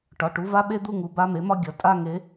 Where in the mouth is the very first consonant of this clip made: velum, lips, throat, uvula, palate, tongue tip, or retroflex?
retroflex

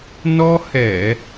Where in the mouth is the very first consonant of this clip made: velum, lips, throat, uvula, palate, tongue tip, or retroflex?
tongue tip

